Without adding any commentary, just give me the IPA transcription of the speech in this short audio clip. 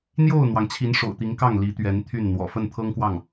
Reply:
n̪ j o˥˩ ʊ̯ n̪ w ɑ˩ ŋ t͡ɕʰ i˧˥ n ʂ o̰˨˩ ʊ̯ t̪ i˧˥ ŋ k ɑ˥˩ ŋ l i˧˥ t̪ ɥ ɛ˧˥ n t̪ʰ y˥˩ n n̪ w ɔ̰˨˩ f ə˥˩ n t̪ʰ ɤ˥ ŋ k w ɑ˥˩ ŋ

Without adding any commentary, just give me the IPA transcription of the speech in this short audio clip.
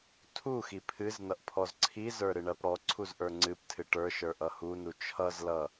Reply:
tʰ u x i pʰ ɨ z n ʌ ʔ pʰ ɔ z ǀʰ i z ə˞ ɾ ɨ ɳ ɜ p ɽ ɔ ǀʰ u z ʔ ə˞ ŋ͡ǀ ɨ p tʰ ɨ ʈ ə˞ ʃ ə˞ ʔ ʌ h u n u t͡ʃʰ ʌ z l ʌ

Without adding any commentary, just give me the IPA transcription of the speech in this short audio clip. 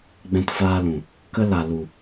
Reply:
ɡ͡b ɛ̃˧ t f aː˧ l ũ˨ | k ə˦ l a˨ l u˨

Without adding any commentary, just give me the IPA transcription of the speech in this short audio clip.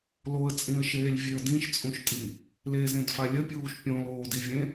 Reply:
l o ə̯ t͡sʼ ĩ ə̯ ʃ eː lʲ vʲ e ə̯ d ĩ ʃ t͡sʼ ũ ʃ tʼ i | l e z ẽ d f a lʲ ə pʲ uː ʃ pʲ õ l oː d i vʲ ẽ

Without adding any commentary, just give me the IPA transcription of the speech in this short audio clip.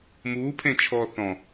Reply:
m uː pʰ ẽ t͡ʃʰ ɔː θ ɔ̃

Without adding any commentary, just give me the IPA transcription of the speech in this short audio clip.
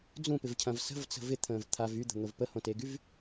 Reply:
d͡z ũ p ɪ v cʰ ɐ̃ v s ə̤ v t͡s ə̤ v ɪ t̪ʰ ə̃ː v t̪ʰ a v y d̪ ə̤ n̪ o v p ə h õ t e ɡ y v

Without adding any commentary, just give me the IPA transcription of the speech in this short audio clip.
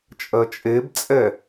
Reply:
t͡ʃʼ ɜ t͡ʃʼ e b t͡sʼ ɛ

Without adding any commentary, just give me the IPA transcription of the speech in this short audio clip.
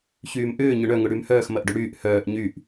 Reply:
ç yː m ʔ ʏː ɲ ʊ ɳ œ ŋ ʊ ɽ y m h œː x m ɐ ʔ ɖ ʏ ɽ yː ʔ h œː ʔ ɲ y ʔ

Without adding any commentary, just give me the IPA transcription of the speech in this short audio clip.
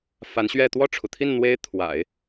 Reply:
f a˧˥ n ɕ ɥ ɛ˥˧ t̪ w ɔ˥˩ ʈ͡ʂʰ u˩ t̪ʰ i˥˩ n n̪ w e˥ ɪ̯ t̪ʰ w a̰˨˩˦ ɪ̯

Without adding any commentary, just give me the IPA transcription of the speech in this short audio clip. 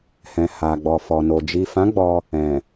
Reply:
h ɛ̃˨ h a˨ ɡ͡b ɔ˨ f ɔ˨ n o˨ d͡ʒ i˨ f ã˨˦ ɡ͡b ɔ˧ | ɛ̃˨

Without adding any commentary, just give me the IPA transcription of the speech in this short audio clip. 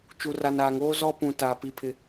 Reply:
t͡ʃ u˨ r a˨ n aː˨ ŋ oː˦ z ɔ˦ p ũ˨ t aː˨ p i˨ pʰ ɪ˨

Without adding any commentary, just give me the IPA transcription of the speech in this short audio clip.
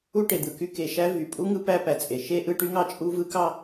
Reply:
u˥ ʈ e˩ d̪ ɯ˩ k y˥ k e˩ ʃ æ˥ v y˩ pʼ u˥ ŋ ɯ˥ p æ˥ p æ˩ t͡sʼ e˩ ʃ e˥ ʔ ɯ˥ ʈ y˥ ŋ ɑ˥ t͡ʃʼ u˥ v ɯ˥ k ɑ˥

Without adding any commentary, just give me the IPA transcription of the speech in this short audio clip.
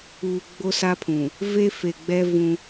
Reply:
uː˨ ɡ͡b o˦ s a˦ pʰ ũ˨ | v e˦ f e˨ ɡ͡b ɛ˦ v ũ˦

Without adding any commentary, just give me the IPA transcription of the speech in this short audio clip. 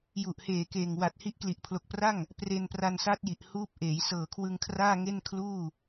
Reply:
j u˨˩ ʔ h eː˨˩ k eː˨˩ ŋ w a˨˩ t̚ h i˦˥ ʔ k l i˨˩ ʔ pʰ l o˨˩ k̚ p r a˥˩ ŋ | p r e˧ n p r a˧ n s a˦˥ t̚ j i˨˩ ʔ h uː˦˥ p̚ ʔ eː˩˦ j s ɤː˨˩ kʰ w ɯ˧ ŋ kʰ r aː˥˩ ŋ e˥˩ n kʰ l uː˥˩

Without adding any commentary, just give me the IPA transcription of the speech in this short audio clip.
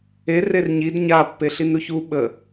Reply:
e r e r ɲ i d ɲ a pː e ɬ i n ɾ u ç u ɓ ə

